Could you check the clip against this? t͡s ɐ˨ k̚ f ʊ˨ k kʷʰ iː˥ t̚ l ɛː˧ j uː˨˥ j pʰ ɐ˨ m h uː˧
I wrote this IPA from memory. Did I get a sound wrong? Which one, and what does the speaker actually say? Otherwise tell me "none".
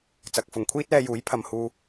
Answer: k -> ŋ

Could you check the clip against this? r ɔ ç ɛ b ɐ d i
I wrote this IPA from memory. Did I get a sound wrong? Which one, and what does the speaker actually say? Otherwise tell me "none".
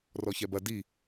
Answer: none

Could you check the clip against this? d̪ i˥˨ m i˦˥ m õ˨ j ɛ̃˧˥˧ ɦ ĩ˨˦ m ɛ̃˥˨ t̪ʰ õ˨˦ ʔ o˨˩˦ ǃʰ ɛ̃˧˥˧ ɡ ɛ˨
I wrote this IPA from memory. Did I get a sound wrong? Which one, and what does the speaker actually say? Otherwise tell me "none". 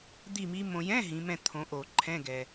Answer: none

